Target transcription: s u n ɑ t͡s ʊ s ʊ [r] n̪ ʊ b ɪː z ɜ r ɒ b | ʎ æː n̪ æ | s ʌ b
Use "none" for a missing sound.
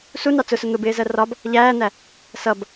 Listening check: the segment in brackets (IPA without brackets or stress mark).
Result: none